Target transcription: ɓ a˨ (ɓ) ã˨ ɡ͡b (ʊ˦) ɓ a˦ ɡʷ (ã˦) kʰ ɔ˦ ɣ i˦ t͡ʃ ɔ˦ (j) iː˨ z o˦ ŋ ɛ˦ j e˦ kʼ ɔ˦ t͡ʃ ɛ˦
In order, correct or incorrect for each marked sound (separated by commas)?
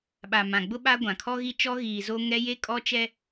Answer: incorrect, correct, incorrect, incorrect